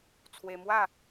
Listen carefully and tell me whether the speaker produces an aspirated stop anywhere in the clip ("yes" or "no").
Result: yes